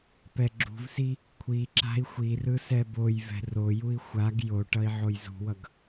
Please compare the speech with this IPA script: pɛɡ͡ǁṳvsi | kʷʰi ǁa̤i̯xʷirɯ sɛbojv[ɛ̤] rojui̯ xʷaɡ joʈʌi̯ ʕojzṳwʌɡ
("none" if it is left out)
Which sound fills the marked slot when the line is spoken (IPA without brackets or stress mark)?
ɛ̤